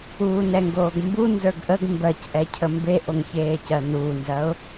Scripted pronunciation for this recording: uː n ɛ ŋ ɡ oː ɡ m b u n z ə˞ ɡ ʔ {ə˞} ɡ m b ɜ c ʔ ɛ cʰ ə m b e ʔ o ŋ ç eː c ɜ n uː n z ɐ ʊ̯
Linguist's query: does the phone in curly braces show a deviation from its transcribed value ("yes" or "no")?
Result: yes